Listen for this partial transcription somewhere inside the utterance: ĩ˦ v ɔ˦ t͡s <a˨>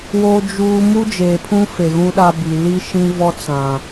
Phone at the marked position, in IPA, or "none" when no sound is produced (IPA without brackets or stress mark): ã˨